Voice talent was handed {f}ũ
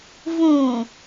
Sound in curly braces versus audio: incorrect: v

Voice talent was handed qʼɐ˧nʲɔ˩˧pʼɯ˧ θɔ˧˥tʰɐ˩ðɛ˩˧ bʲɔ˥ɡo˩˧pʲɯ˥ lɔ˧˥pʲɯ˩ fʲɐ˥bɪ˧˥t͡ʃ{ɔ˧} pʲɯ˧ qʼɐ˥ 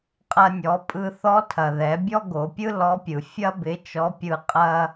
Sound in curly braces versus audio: incorrect: ɔ˧˥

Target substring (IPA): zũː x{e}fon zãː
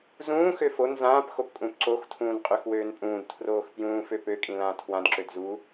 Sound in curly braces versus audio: incorrect: ø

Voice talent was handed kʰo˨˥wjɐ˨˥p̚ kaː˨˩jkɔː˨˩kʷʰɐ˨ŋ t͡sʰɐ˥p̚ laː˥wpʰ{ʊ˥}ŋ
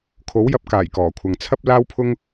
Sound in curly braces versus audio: correct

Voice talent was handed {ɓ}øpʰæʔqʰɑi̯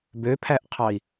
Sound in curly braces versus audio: incorrect: b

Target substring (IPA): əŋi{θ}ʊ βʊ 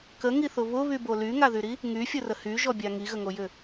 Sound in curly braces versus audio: correct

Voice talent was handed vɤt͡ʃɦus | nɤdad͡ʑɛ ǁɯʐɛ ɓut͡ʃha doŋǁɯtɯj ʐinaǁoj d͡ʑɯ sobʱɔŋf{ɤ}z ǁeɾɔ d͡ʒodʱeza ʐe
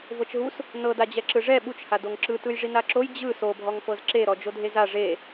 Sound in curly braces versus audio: correct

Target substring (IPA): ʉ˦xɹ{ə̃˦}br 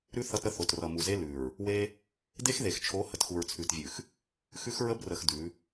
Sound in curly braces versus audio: incorrect: ə˦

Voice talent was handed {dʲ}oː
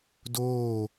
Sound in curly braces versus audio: incorrect: d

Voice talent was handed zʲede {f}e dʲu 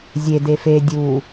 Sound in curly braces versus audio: correct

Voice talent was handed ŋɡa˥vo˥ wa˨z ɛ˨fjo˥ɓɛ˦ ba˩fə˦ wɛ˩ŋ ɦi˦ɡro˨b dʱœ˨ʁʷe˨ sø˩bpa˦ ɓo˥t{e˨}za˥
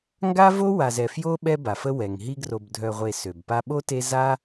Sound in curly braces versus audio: incorrect: e˦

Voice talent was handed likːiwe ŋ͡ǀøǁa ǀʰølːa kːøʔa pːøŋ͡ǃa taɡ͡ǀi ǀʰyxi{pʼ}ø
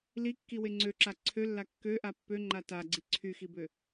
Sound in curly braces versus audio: incorrect: b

